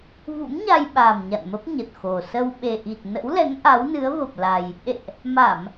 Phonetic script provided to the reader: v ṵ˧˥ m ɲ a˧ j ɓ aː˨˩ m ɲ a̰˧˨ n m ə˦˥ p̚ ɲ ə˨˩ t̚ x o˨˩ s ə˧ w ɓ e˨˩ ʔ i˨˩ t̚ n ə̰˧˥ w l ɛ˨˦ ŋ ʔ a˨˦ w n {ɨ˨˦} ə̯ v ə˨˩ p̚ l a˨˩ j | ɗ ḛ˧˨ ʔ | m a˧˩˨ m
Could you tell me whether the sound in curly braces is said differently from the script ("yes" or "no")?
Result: no